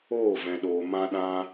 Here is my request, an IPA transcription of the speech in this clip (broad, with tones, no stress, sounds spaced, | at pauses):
oː˦˨ v ɛ̃˨ ɗ oː˨ m ã˦ ɗ ã˦